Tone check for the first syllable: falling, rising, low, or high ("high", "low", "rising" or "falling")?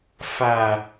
low